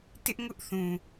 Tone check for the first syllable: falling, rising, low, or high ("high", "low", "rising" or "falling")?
high